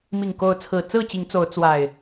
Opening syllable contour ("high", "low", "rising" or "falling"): low